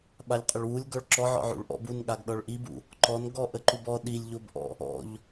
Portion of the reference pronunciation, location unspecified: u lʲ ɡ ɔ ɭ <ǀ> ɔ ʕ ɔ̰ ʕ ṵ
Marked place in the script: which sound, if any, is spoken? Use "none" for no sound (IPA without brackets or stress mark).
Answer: ǁ